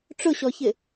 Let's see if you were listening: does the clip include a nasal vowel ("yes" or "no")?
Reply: no